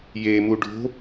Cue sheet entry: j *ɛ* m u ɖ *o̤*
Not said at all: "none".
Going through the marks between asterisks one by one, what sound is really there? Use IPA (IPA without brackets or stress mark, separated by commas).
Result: e, o̤